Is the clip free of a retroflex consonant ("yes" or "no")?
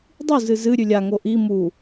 yes